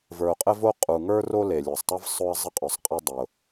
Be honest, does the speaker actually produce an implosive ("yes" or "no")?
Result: no